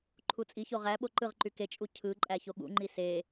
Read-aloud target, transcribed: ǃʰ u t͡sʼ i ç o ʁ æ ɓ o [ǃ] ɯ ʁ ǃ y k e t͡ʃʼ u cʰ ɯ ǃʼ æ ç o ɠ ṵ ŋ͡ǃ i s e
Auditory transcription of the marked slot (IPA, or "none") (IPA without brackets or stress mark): ǃ